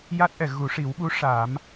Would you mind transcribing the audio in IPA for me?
ja˦˥t̚ʔɛ˨˩˨ ɣu˨˩˦ʂi˨˩˦wɓu˧˥ ʂa˨˩˦m

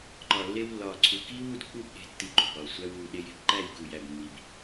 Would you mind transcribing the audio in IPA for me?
ǃɒ˨lːe˧wlːɒː˨ ǀʰu˧ kiː˦wu˧dk͡pu˦˨bɗe̤˧ tːi˧ǃṳ˨bɒː˨ sʷæ˧wuː˨ ɗe˧je̤˧pǃæ˦˨j ku˨jæ˨b mːi˨b

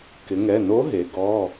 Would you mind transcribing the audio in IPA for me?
kɪ˩˧ŋɛ˩˧˩ no˧˥ɦe˩˧ ɡɔ˩˧˩

